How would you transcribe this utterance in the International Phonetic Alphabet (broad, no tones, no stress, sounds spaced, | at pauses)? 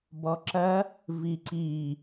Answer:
b ɔ ǁ ɐ | v i ǀ i